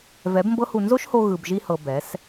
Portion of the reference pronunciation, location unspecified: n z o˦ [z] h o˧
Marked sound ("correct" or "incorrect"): incorrect